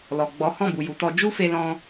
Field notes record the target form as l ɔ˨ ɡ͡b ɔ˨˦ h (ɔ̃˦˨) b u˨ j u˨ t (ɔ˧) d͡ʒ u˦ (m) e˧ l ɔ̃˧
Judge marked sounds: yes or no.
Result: yes, yes, no

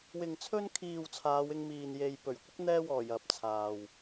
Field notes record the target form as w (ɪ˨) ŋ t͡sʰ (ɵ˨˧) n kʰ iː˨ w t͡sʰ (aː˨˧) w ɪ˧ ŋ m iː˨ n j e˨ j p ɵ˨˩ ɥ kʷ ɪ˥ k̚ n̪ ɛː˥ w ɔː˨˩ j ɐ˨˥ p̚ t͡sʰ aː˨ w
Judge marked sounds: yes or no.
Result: yes, no, yes

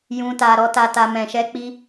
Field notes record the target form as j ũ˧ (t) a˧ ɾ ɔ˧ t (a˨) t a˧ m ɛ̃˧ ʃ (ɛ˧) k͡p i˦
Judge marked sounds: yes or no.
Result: yes, no, no

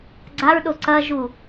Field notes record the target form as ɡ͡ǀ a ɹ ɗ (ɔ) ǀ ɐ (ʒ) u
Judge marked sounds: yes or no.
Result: no, yes

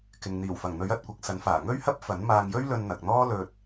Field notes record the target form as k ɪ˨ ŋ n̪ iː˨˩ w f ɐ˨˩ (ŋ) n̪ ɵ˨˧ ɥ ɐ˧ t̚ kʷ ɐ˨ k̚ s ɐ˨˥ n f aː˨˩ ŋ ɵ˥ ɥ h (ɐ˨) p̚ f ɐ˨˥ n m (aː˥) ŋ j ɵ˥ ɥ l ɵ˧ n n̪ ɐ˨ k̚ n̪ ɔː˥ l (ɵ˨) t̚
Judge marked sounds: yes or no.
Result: yes, no, no, no

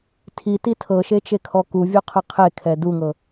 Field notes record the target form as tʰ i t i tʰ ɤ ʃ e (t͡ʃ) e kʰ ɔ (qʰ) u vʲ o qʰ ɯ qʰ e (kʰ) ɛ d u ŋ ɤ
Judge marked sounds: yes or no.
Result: yes, no, yes

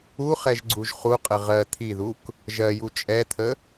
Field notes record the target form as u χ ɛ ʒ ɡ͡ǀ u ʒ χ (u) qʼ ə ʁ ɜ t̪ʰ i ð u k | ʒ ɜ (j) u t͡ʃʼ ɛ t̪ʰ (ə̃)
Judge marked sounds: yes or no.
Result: yes, yes, no

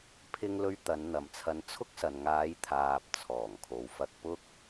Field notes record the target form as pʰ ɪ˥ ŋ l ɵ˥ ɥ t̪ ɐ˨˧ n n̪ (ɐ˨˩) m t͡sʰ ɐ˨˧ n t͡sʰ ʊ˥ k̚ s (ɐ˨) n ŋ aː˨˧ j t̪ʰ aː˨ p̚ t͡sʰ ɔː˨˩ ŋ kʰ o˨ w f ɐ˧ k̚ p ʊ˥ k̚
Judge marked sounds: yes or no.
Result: no, yes

